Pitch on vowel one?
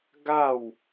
falling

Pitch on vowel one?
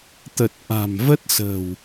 low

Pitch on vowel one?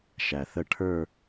low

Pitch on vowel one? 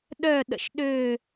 falling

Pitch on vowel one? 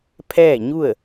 falling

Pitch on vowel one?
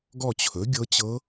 falling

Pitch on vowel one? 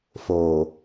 low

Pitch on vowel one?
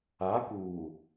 rising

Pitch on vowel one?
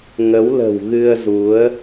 rising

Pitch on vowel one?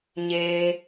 low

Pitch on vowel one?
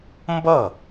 falling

